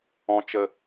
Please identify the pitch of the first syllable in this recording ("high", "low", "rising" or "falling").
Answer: low